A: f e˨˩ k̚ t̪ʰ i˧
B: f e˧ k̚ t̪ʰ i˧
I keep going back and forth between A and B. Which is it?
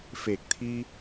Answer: A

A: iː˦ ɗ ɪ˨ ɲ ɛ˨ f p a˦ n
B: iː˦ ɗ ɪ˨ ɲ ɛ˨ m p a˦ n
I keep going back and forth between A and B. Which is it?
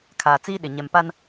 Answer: B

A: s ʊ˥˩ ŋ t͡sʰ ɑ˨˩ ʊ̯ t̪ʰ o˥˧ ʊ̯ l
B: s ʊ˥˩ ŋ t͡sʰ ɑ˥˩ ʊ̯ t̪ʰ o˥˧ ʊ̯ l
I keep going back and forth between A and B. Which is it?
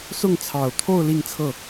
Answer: A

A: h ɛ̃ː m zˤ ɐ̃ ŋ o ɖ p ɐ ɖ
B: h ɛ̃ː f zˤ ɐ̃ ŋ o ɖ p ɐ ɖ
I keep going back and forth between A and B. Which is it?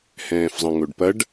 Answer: B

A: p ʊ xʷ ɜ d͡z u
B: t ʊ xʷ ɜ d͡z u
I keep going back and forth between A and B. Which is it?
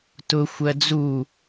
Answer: B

